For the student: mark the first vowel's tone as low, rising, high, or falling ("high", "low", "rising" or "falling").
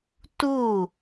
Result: falling